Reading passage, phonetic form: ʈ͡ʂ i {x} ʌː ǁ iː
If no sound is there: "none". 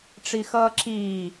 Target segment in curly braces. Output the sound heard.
x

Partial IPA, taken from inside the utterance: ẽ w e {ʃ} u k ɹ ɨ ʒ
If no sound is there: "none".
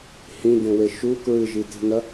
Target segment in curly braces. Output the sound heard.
ʃ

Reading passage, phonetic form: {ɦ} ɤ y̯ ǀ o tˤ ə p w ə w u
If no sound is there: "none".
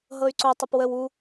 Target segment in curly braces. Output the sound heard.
ɦ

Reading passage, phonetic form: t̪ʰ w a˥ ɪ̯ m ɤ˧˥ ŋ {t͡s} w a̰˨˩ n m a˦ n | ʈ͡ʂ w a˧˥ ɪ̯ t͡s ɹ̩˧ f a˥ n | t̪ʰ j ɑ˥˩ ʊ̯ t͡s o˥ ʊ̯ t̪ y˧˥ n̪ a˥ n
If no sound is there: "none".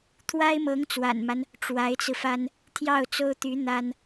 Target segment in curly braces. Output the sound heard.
t͡s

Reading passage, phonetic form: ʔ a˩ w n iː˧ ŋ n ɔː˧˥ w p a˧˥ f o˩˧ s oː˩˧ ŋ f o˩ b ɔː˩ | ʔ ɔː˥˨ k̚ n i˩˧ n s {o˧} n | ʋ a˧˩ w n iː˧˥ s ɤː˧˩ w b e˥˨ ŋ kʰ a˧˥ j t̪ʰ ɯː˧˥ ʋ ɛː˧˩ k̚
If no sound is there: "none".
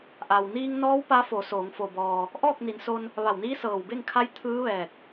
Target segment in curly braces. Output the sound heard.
o˧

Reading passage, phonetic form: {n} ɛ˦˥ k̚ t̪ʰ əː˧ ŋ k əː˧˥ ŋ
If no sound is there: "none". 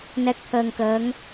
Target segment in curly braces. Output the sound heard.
n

